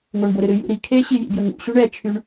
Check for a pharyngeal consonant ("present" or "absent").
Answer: absent